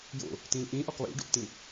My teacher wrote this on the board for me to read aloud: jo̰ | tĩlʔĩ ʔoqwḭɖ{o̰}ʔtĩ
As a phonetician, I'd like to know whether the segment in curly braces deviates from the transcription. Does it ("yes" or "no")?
no